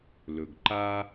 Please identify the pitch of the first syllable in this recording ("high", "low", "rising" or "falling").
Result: low